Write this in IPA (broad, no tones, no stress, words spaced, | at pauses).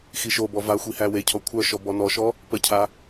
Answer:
xiʃobɔ vaxʷi hæwecʰɔ kʷʰœʃɔ bɔnɔʃɔ | pəcʰa